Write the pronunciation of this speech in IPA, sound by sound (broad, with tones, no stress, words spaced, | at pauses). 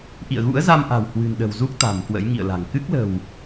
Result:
ʔḭ˧˨ə̯ɣṵ˧˥ə̯za˧mʔa̤˨˩w hwɨ̤˨˩nɗə̤˨˩wzu˦˥k̚ t̪a̤˨˩mkwə̰˧˥jŋḭ˧˨ə̯la̤˨˩ŋ kɨ˦˥k̚lə̤˨˩w